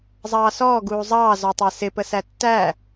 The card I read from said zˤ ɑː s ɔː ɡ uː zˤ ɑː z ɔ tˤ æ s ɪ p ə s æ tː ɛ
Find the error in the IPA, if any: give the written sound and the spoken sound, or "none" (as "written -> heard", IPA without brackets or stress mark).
ɛ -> æ